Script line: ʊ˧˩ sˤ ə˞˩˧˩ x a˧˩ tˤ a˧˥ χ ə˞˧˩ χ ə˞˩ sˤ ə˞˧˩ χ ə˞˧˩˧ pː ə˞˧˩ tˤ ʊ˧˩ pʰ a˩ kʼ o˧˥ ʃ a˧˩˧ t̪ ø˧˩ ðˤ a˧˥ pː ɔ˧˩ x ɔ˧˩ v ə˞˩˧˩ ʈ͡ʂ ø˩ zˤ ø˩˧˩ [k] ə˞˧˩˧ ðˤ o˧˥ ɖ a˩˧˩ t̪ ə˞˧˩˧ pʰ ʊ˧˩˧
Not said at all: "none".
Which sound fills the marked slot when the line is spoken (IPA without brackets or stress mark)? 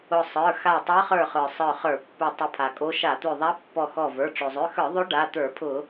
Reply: x